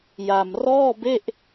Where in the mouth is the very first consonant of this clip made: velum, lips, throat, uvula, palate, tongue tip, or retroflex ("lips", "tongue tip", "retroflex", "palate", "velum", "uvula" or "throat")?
palate